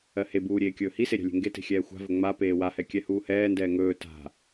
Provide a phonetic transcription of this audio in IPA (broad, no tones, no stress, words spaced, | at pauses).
ɜhebuː ɾʲeːkʲɵːhise ɾʲa̤lʲe̤ŋɡete̤ xʲɛːxʷa̤vɵ ŋ͡ma peːwahɛ kʲɛhuːhɛːndɛː ŋɵː ta̤